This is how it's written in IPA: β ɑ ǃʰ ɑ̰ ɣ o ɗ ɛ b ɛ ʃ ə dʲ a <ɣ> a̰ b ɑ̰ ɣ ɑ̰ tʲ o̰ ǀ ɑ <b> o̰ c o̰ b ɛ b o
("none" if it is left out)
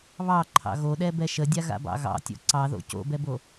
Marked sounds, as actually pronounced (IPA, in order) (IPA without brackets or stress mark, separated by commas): ɣ, ð